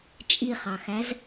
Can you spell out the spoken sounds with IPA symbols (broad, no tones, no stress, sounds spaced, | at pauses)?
t͡ʃʼ i χ ɑ x æ z